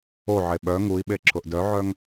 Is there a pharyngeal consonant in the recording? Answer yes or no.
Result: yes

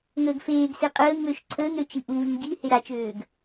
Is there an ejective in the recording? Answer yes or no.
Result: yes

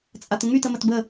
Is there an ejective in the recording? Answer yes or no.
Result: yes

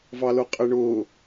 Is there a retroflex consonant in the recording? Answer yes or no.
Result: yes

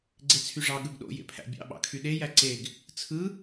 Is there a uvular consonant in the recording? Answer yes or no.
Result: no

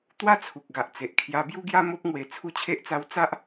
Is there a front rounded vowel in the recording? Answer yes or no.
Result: no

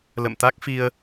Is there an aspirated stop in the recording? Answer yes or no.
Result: no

